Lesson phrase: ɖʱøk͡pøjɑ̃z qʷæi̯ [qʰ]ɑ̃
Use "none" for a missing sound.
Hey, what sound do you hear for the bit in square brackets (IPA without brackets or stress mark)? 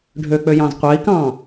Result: k